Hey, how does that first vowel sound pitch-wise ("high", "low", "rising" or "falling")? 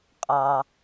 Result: low